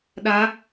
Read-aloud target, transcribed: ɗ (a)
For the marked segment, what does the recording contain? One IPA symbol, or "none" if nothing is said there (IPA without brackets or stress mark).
a